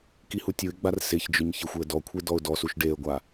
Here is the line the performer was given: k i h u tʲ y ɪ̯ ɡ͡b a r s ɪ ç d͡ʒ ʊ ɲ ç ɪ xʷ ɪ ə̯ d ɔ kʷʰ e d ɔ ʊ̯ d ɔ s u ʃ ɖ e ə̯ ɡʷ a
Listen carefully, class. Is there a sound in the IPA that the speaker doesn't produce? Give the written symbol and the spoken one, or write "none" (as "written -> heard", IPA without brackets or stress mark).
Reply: y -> u